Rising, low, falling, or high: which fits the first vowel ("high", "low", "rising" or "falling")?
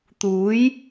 rising